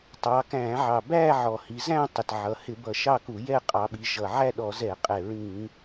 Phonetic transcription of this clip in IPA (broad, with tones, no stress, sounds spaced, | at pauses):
tˤ ɑ˩˧ k æ̃˧˩˧ ʕ ɑ˨˩ b æ˥˧ ʕ ɔ˨˩ h i˩˧ z æ̃˥˧ tˤ ɪ˨˩ t ʕ ʌ˩˧ h ɪ˧˩˧ b ʌ˨˩ ʃ ɑ˥˧ k u˧˩˧ j ɛ˥˧ qʼ ɑ˩˧ ɓ i˩˧ ʒ ʌ˨˩ ʕ æ˥˧ ɗ ɔ˧˩˧ z ɛ˧˩˧ qʼ ɛ˨˩ ɹ ĩ˧˩˧